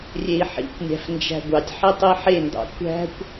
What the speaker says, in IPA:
rʲ e i̯ ħ ḭ kʷ nʲ æ̤ f n d͡ʒ æ̤ ɡʷ ɑ tʲ ħ i tˤ i ħ e n d ɑ̰ kʷ æ̤ kʷ

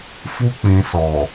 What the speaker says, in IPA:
f u˧ k͡p ĩ˨ s ɔ˨

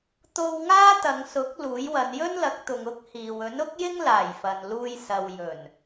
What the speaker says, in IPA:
t̪ o˧ w ŋ aː˥ t̪ ɐ˨˧ ŋ s ʊ˨˥ k̚ l uː˨˥ j w ɐ˨˧ n j ɵ˥ n l ɐ˨˥ k̚ t̪ ʊ˨ ŋ ʊ˥ k̚ h iː˨ w ɵ˨˥ n ʊ˥ k̚ j ɪ˥ ŋ l aː˨˩ j f ɐ˨ n l uː˧ j s ɐ˨ w j ɵ˨˩ n

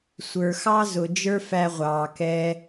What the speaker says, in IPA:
sʷ ə˞˩ x ɑ˧ z ʊ˩ d͡ʒ ə˞˥ f æ˧ ʁʷ ɑː˩ k ɛ˧

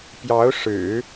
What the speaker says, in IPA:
p j ɑ˧˥ ʊ̯ ʂ ɻ̩˨˩˦

